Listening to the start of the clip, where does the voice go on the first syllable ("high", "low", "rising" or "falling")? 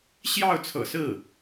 falling